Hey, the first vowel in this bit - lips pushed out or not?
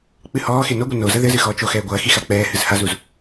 no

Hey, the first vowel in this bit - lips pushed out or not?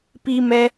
no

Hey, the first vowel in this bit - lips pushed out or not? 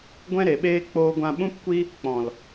no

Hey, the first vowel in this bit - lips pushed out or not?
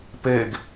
no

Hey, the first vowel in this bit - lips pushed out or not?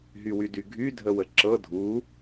yes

